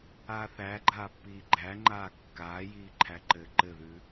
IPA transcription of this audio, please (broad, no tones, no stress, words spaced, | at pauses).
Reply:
aːθæɡ͡ǃaːpːiː ɡ͡ǃæŋ͡ǃaː kːaːjiː ǃʰæǃɘːǃɘðʉ